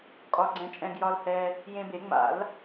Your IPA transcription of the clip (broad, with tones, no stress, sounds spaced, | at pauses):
kʼ ɒ˧ ɡ͡ǀ ɛ̃˧ t͡ʃʼ ɛ̃˧ ɡ j ɒ˧ l h ɛ˧ | j ẽ˧ b e˨˩˦ ŋ͡m a̰˨˩˦ l